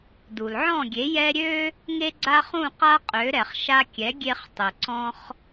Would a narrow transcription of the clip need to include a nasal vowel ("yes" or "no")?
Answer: yes